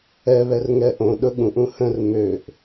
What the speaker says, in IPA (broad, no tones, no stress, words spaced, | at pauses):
ɛ βɛrŋɛʔõ ɗʊɠũʔ ũhə̃r møʔ